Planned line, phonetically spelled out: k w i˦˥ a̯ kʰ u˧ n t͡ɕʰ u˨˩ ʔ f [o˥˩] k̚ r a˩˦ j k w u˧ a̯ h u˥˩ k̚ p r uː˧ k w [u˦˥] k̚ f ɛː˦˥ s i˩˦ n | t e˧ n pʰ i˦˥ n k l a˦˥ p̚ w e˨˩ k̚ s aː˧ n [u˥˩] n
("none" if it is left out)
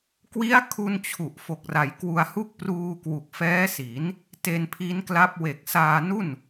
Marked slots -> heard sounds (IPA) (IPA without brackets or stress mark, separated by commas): o˨˩, u˨˩, u˥˩